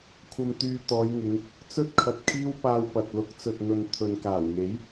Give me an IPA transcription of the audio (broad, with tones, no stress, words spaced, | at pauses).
kʷʰɐ˧mt̪yː˧t̪ɔː˨˧jŋɪ˨˧ŋ | t͡sɵ˥t̚kʰɐ˨t̚ kʰiː˥wpaː˧wpɐ˨t̚ lʊ˨˥k̚t͡sɵ˨t̚n̪ɵ˨n t̪ʰɵ˨nkaː˨˩wŋe˨˥j